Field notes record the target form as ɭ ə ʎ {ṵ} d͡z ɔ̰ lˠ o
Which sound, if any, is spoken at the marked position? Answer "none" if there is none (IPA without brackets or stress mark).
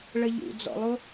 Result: ṵ